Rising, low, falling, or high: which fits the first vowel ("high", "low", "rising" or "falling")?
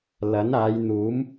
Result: rising